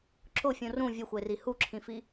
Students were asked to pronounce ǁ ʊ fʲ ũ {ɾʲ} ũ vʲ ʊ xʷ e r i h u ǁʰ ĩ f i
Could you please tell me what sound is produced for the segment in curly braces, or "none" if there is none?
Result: r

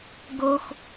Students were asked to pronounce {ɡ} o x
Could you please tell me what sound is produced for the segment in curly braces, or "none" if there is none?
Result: ɡ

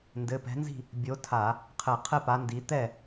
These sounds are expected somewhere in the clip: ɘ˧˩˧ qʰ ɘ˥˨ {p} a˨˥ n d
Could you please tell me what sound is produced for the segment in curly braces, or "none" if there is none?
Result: p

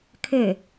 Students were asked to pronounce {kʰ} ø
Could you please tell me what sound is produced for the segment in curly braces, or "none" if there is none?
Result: kʰ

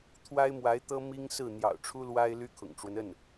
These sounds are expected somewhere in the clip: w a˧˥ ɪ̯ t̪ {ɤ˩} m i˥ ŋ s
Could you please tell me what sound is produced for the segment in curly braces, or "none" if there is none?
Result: ɤ˥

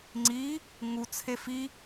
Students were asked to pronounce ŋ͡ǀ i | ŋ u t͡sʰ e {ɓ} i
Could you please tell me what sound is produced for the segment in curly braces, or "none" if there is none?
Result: f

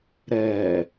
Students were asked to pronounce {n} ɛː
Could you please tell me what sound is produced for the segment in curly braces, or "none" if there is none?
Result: ɾ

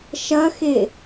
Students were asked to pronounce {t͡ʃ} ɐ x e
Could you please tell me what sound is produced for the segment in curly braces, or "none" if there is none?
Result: ʃ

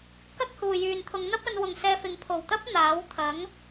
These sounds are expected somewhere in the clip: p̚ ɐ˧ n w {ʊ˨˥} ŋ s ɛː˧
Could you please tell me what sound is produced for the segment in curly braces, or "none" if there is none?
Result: ʊ˨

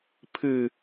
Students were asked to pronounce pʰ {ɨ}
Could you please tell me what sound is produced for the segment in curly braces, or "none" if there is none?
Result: ɨ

